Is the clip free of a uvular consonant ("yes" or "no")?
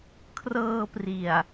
yes